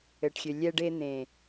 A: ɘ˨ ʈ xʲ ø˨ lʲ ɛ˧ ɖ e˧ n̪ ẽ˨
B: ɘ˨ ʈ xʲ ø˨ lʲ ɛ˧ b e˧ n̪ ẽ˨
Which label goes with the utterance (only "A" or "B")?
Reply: A